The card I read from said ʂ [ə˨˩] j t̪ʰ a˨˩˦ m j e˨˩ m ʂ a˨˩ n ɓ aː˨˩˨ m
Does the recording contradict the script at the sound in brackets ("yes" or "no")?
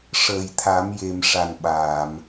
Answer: yes